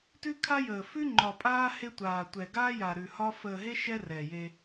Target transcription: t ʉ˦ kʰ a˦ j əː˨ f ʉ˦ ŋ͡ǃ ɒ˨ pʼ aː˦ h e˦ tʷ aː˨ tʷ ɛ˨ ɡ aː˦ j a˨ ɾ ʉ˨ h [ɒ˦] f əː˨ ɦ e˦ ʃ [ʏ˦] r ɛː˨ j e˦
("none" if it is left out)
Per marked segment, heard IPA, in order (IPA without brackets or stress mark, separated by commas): ɒ˦, ɛ˦